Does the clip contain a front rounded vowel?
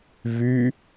yes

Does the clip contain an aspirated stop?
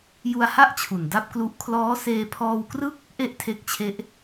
yes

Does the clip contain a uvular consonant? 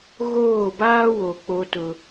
no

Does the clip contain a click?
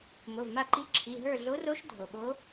yes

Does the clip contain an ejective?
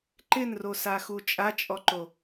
yes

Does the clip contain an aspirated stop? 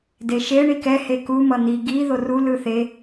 no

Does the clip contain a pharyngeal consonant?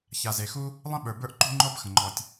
no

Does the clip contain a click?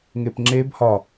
yes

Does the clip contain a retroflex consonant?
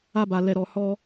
no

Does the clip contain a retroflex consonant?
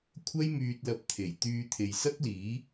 no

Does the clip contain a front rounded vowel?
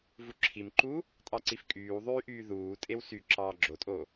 yes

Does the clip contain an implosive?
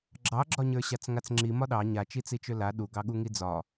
yes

